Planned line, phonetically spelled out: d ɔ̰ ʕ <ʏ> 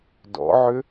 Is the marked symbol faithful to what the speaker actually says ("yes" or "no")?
yes